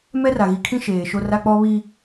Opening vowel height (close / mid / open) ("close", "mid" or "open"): mid